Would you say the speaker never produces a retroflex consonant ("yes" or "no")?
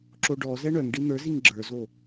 no